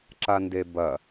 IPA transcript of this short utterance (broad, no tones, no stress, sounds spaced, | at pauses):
ǁ a n d e b ɐ